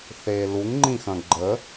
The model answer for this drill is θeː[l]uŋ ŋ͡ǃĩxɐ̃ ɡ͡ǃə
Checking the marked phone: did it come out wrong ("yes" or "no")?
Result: no